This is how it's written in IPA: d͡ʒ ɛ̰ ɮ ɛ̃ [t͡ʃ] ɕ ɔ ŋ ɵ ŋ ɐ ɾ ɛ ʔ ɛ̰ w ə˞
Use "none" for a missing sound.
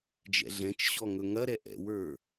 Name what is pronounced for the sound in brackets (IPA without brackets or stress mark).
t͡ʃ